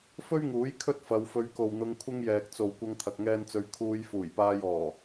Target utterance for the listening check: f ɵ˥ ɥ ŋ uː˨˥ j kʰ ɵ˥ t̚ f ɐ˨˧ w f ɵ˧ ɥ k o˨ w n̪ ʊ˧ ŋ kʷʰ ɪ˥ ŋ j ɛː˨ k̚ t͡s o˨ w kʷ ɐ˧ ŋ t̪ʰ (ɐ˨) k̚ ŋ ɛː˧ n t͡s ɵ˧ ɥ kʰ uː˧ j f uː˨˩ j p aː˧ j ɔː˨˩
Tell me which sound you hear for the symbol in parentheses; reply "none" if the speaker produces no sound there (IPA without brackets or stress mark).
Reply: ɐ˨